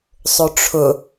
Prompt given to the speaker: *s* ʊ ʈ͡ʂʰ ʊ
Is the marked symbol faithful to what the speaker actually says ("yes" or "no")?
no